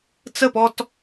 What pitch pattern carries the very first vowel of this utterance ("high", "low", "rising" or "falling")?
falling